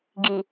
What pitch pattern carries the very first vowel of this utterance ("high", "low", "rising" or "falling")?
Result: low